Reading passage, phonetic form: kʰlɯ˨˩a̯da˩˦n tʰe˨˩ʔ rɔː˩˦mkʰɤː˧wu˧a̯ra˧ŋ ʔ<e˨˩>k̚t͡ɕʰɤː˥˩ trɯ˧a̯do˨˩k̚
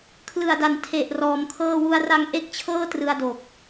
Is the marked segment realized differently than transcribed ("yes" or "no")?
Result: yes